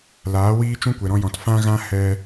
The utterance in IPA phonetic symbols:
l aː˨˦ w iː˦ t͡ʃ ũ˦ kʷ ɛ˨ ɾ ɔ̃˧ j ɔ̃˨ t f ã˦ ɣ ã˦ h ɛ˧

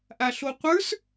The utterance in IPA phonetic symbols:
ʔ a ɬ o qʷ ə˞ s

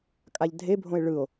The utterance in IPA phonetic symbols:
kʼ a ʎ dʱ e bʱ õ e̯ ɭ ɯ o̯

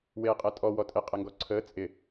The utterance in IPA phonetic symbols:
w eː qʼ e tʼ ɔ w ɔ tʼ ɪ qʼ ɪ ŋ ɡ ɔ ǀʰ əː t͡sʼ ɪ

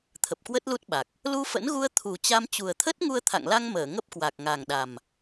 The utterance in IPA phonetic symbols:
t̪ʰ ə˨˩ p̚ k w ə˦˥ t̚ l u˦˥ t̚ ɓ a˨˩ k̚ | l u˧ f ə̰˧˥ n ɣ u˧ ə̯ t̪ʰ u˨˩ t͡ɕ a˧ m t͡ɕ u˨˩ ə̯ t̪ʰ ə˦˥ t̚ ŋ u˧ ə̯ t̪ʰ a̰˧˨ ŋ l a˧ ŋ m əː˧˩ ŋ ə˦˥ p̚ k w a˨˩ k̚ ŋ a˨˩ ŋ ɗ a˨˩ m

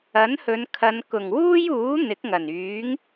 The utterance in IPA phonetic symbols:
ɐ˨˥ n h ɵ˨˧ n kʰ ɐ˨˧ n k ʊ˨˩ ŋ w uː˥ j uː˨˥ n̪ ɪ˨˥ k̚ ŋ ɐ˨˩ n yː˨˥ ŋ

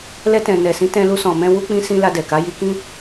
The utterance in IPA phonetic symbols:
l ɛ˧ t ɛ̃˨ n ɛ˨ s ĩ˨˦ t ɛ̃˧ l u˧ s ɔ̃˨ m ɛ̃˧ w u˧ k͡p ĩ˧ s ĩ˧ l a˧ d ɛ˨ k a˨˦ j i˧ k ĩ˦

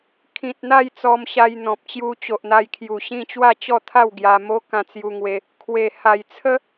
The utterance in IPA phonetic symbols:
kʰ ĩ˨ t̚ n̪ a˥˧ j t͡s ɔ˧ m ɕ a˧ j n̪ ɔ̃˨ p̚ t͡ɕ j u˧ t͡ɕ o˨ ʔ n̪ a˧ j kʰ j u˨˩ ɕ ĩ˥˧ t͡ɕ w a˥˧ t͡ɕ ɔ˥˧ t̪ʰ a˥˧ w ɡ j a˧ m o˦ k ã˧ t͡s j u˧ ŋ w e˧ | kʰ w e˨˩ h a˨˩ j t͡sʰ ə˦

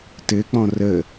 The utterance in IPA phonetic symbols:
t ɘ k͡p ɔ̃ r ə

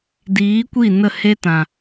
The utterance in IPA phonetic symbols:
d iː˨˦ kʷ i˦˨ n ə˦˨ h e˦ t ã˨

